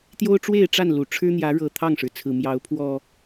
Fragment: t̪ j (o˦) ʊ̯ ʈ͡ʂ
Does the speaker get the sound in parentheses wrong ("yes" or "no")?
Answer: no